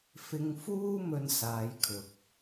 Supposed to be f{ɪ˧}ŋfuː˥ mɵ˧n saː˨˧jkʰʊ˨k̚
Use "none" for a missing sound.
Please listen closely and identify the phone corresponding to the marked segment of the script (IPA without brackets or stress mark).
ɪ˧